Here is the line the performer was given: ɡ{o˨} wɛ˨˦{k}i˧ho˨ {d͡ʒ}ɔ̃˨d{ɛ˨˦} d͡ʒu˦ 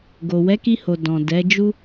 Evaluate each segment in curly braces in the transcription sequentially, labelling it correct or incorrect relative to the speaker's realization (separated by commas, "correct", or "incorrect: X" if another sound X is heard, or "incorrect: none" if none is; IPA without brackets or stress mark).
correct, correct, incorrect: d, correct